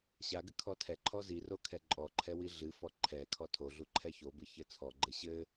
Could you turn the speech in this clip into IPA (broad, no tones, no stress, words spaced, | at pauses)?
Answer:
ɕaɡɨ kʰɔtʰɛǃʰɔ ziro kʰɛǃʼɔǃʰɛ wiɮɨfɔ ǃʰɛ kʰɔtʰoɮu ǃʰɛçobɨ çɘt͡sʰɔɡ͡ǃɘ ɕɘ